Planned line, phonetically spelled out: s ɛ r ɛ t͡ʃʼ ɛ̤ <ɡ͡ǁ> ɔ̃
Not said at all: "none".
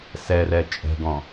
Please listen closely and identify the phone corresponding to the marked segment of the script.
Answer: ɡ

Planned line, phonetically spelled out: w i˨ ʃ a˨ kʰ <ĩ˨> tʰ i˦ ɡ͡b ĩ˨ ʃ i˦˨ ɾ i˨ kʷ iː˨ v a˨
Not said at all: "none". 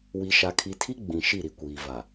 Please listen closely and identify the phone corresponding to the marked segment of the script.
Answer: i˨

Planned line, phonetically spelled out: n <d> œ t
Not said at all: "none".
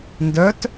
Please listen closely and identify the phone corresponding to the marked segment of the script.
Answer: d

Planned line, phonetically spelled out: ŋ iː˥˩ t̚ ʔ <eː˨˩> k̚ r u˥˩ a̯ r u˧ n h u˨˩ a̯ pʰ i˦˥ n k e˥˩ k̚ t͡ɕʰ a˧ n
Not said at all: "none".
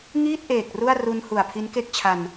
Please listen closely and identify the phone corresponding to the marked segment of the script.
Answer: eː˨˩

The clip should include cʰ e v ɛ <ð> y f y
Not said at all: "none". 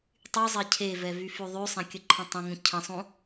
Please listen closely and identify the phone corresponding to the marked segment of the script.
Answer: v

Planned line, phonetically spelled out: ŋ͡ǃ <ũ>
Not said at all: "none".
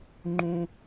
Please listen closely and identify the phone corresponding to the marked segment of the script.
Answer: ũ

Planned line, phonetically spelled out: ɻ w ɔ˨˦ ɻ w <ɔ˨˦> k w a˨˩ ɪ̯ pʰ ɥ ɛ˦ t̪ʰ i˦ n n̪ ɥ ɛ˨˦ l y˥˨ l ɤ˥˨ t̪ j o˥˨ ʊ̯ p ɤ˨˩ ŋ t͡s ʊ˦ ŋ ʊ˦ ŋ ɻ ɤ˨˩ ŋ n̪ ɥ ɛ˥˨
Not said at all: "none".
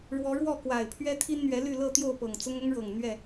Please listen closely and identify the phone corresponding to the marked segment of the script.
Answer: ɔ˥˨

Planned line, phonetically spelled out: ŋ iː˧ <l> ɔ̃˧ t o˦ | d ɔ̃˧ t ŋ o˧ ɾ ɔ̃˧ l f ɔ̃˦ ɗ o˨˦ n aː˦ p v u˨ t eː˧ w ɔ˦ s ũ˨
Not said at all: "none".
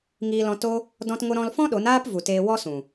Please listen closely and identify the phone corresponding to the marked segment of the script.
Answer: l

